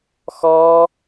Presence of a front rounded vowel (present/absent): absent